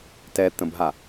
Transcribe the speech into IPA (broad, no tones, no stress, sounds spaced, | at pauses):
t ɛ t̪ ə̃ b ɦ a